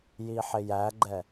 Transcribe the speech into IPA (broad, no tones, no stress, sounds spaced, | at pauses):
j i ħ ɪ j æ ɡ͡ǃ ɛ